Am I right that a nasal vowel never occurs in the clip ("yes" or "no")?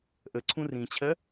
no